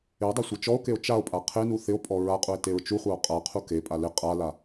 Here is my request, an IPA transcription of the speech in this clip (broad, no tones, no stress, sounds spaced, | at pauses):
ɪ o̯ dˤ e sʷ e t͡ʃ ɔ o̯ k e o̯ t͡ʃ a o̯ pʼ a qʰ e n u θ ɪ o̯ pʼ ɔ ɹ a qʼ u e̯ t e ɹ t͡ʃ u χʷ a o̯ qʼ a qʰ u k e pʼ a l ɪ qʼ a l a